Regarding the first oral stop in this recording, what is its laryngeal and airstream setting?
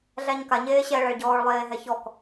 plain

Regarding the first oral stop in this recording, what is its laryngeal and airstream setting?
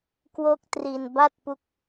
plain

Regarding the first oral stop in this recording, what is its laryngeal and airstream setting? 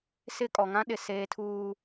ejective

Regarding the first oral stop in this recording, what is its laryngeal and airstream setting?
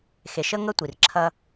plain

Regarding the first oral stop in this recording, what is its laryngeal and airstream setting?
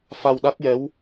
implosive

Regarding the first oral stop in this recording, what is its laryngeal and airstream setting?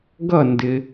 plain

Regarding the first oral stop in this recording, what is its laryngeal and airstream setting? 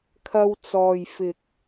aspirated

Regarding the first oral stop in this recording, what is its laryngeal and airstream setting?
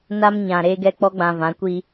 plain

